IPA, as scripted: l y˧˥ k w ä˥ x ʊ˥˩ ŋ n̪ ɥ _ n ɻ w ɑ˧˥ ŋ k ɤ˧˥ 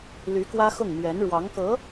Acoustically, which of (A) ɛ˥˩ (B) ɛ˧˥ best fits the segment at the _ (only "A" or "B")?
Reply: B